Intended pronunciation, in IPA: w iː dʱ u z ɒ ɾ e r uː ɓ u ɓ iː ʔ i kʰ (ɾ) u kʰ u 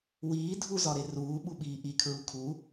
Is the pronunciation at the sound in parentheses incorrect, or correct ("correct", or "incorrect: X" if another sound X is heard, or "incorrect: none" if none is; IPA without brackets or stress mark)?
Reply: incorrect: ɹ